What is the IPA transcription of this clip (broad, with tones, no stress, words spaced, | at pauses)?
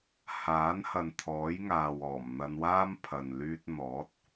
haː˨˥nhɐ˨n t̪ʰɔː˨˥jŋaː˨w ɔː˨˩m n̪ɐ˧nwaː˥m pʰɐ˨nlyː˧t̚n̪ɔː˨˥t̚